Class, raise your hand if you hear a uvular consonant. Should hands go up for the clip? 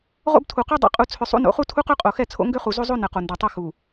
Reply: yes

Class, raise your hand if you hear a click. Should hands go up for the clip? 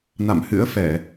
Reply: no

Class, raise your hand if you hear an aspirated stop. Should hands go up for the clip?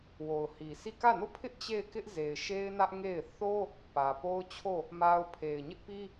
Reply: yes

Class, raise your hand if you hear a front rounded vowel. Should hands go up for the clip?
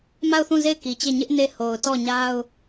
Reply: no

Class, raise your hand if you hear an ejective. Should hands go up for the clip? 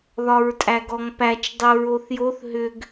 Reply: yes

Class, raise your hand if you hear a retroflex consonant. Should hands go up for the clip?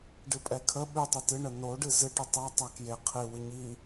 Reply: yes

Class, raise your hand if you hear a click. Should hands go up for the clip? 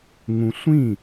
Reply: no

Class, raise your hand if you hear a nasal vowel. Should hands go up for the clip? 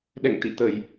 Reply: no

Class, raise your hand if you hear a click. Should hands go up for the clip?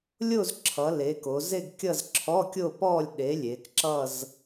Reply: yes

